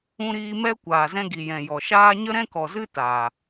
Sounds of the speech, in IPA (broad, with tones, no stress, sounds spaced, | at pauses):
ũ˦ ɾ iː˦ m ɛ˦ kʷ aː˨ z ɛ̃˧ ɡ i˨ j ɛ̃˨ j ɔ˨ ʃ aː˦ ɲ ə˦ ɾ ɛ̃˦ k ɔ˨ z ɨ˦ t a˨